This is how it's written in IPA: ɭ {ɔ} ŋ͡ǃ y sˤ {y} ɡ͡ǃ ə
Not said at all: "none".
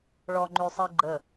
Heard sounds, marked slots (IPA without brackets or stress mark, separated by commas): ɔ, i